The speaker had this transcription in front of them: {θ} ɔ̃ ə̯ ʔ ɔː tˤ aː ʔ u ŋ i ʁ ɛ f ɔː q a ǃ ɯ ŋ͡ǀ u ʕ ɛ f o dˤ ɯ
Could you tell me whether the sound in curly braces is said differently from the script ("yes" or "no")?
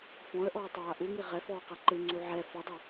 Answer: yes